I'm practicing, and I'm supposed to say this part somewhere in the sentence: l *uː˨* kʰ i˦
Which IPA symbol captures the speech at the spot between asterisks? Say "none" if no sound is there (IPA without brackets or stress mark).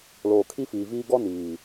oː˨